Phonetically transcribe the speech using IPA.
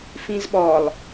fĩzɓɔlˠ

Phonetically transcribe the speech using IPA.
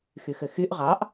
xyxɘxyʔ ʁɑʔ

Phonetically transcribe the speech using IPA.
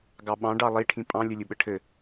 ɡɑɓɑ̃ ɖɑlˠi ʈʰĩpʼɑ̃ lʲɘlʲɯɓɘʈʰɘ

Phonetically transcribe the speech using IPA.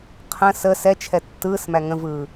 qʰə̃ sə sɛt͡ʃʰɛ tːɯːsmæ ŋə̃vɯː

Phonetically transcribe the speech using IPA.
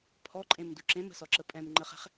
pʰɔǃʼẽmdu ǁẽmə̤sɔǁə pʼɛ̃mŋ͡ǃəχɛ̤χ

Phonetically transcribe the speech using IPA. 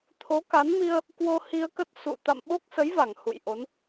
t̪ʰo˨˦ka˨˦nmi˧ə̯ | kwo˧hi˧ə̯kə˦˥t̚ sṵ˧˨ t̪a̰˧˨mɓo˦˥k̚sə˨˦jva˧˩ŋ hṵ˧˨jʔo˨˦n

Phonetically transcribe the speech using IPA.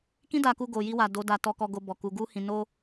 kĩ˦da˧ku˧ ɡo˨ji˧wa˨ do˨˦ da˧ tɔ˧kɔ˧ɡo˧ bɔ˨ku˨˦ ɡu˦hĩ˧ no˦

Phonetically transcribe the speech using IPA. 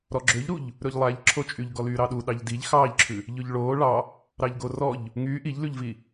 ɾɔɡ͡ǁøʎɾuʎ | ɾɵʎlˠæʎ ǁʰot͡ʃʼyʎ ɡɔlyːɾɑɗu ɗɑʎdiʎ xɑːʎǁʰʉ | ʎɵʎɭoː ɭɑ | ɾɑʎɡorɔʎ | ŋyː ʔiʎlʉʎvi

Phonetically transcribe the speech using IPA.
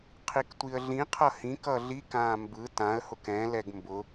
qʰiktʷiə̯ɮĩqʰʌ hĩk ʌɮik ãːmbɯ tãə̯hʊk ɛ̃lɛɡ mbʊ

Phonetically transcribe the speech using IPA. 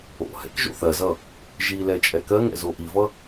o̰hɛ̰k ʒo̰θɜzʌ | ʒilɛ t͡ʃʼɛkɜŋɛ̰ zoʔivʌ

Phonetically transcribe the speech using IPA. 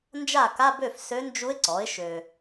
nd͡ʒa˥˩ka˧˥˧bø˥˩f sø˧˥nd͡ʒu˧˥ɪ̯ ǀɔ˩˥ɪ̯ʃø˨

